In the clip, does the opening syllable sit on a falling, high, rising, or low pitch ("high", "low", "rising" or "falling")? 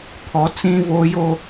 rising